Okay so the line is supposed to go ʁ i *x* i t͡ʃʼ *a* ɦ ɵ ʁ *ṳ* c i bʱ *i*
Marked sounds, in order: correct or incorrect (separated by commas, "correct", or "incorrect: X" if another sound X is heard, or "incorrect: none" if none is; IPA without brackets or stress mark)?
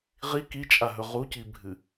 incorrect: k, correct, incorrect: u, incorrect: ɨ